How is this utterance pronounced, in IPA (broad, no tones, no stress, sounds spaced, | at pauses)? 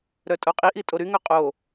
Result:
ɾ œ tʼ o qʼ i ʔ i tʼ o ɾ y ŋ œ qʼ o